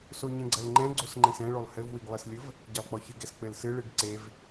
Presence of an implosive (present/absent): absent